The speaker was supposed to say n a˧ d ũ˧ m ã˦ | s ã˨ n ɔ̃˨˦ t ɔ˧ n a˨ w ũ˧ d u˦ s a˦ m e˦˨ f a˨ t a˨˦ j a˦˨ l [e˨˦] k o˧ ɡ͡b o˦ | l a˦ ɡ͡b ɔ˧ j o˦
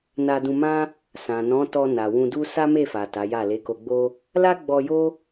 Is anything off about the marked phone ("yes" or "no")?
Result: no